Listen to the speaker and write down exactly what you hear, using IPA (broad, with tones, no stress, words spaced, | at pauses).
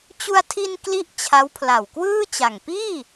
t͡ɕu˧a̯tʰi˧n kli˥˩ʔt͡ɕʰa˦˥wpʰla˨˩w kwɯː˥˩t͡ɕa˨˩ŋ piː˥˩